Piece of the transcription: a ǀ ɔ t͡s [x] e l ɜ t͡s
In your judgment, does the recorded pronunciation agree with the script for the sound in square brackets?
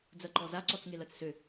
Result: no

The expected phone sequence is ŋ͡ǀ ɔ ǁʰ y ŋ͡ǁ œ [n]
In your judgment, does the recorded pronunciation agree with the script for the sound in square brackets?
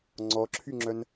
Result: yes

